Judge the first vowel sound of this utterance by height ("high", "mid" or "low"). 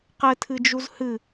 mid